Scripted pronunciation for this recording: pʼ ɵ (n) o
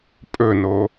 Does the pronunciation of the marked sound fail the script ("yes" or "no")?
no